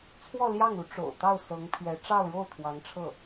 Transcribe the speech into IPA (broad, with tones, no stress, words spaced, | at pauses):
t͡sʰwɔ˥˧ ljɑ˥˩ŋu˧˥ ʈ͡ʂo̰˨˩ʊ̯t̪ɑ˥˩ʊ̯ sɤ˧˥ŋpʰɥɛ˧˥ ʈ͡ʂɑ˥˧ʊ̯ɻo˥˩ʊ̯ t̪ʰwɑ˧˥ŋʈ͡ʂʰɤ˥˩